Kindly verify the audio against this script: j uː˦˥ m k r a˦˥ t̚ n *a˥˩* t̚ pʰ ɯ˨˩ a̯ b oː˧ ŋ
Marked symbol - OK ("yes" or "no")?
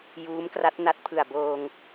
no